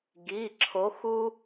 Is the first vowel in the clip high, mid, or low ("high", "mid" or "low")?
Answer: high